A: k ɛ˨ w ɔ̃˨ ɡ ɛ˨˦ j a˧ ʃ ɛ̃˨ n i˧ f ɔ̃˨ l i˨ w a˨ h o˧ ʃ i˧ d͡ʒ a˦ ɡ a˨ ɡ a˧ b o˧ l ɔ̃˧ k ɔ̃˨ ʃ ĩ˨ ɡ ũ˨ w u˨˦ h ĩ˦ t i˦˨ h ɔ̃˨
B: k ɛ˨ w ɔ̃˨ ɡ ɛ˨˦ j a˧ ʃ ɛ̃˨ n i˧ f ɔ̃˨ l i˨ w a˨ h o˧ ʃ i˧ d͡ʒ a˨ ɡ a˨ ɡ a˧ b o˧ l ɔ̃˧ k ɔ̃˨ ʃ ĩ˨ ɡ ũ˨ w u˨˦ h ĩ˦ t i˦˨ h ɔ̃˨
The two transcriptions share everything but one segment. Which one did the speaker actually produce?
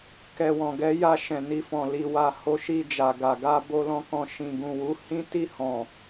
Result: B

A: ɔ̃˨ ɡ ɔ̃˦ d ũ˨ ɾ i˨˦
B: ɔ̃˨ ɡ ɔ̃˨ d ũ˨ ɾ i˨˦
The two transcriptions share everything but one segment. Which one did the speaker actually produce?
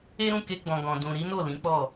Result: B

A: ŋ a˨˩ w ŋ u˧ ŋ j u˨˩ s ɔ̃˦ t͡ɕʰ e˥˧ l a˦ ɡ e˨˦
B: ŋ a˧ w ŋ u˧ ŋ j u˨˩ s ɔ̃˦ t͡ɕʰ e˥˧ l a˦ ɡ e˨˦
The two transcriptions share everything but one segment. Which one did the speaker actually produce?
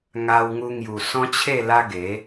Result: B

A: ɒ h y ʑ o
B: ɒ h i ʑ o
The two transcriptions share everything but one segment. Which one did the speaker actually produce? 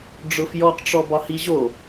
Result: B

